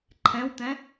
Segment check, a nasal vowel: present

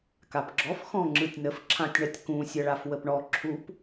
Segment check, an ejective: absent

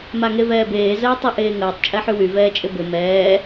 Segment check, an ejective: present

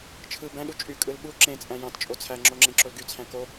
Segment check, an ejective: present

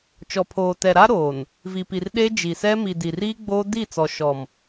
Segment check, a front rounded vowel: absent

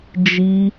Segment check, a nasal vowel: absent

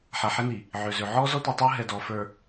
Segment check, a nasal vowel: absent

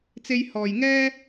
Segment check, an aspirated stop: absent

